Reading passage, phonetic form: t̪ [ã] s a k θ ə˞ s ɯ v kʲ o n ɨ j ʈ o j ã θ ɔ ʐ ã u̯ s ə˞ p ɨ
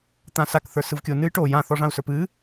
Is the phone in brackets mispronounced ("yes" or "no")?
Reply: no